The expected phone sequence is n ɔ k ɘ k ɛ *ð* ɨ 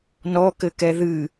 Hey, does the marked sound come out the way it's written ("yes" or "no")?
yes